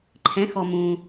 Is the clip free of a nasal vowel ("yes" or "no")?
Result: no